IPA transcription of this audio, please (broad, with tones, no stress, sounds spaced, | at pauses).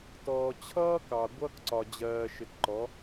t ɔː˨ t͡ɕʰ ʌː˦ k ɑ˨ ɡʷ ʌː˦ k ǀ ɒ˨ d͡ʑ ɜː˨ ʃ ɪ˨ t ǃ ɔ˨˦